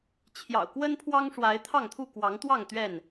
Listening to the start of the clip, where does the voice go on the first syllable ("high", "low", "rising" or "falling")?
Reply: low